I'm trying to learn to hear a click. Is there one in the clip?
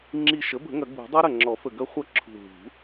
yes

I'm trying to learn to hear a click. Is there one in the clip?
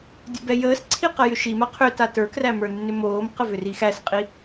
yes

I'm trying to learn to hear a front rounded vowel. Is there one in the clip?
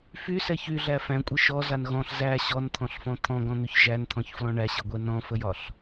yes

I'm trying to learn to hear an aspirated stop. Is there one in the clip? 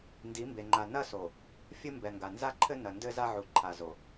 yes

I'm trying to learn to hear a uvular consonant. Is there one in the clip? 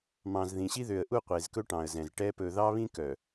yes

